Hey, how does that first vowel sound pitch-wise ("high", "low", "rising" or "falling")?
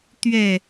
falling